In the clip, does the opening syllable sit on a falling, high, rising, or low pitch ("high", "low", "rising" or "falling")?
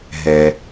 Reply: low